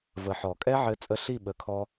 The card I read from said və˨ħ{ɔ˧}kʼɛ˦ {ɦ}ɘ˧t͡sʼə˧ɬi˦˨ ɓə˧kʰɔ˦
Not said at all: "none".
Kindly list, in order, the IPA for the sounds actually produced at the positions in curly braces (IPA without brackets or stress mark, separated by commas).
ɔ˨, ʕ